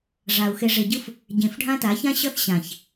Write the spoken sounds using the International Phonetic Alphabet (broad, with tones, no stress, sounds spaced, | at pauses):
ʐ a˨ u̯ x e˨ ʐ e˨ ɟ ɯ˦ f | ɟ ẽ˨ f ɖʱ ã˦ t a˨˦ ç ã˦ ɕ ʌ˦ θ ɕ ã˨ ç